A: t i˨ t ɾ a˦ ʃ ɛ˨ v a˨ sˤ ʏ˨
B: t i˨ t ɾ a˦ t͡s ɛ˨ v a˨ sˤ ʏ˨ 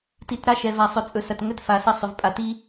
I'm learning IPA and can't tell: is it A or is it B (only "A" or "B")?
A